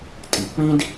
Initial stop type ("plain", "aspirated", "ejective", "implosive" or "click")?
ejective